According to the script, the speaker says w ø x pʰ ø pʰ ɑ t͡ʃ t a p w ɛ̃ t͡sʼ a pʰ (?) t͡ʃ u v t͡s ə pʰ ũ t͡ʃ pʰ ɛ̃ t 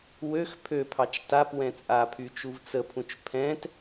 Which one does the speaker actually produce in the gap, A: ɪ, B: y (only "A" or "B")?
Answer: B